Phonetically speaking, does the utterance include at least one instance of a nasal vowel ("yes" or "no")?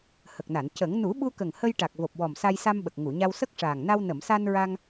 no